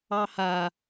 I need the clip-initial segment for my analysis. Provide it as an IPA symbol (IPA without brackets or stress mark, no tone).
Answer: ɑ